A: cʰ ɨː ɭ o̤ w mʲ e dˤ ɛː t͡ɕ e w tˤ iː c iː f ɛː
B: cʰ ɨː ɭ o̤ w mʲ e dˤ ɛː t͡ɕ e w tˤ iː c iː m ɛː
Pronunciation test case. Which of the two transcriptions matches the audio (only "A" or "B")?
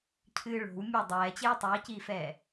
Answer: A